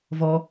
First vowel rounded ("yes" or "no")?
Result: yes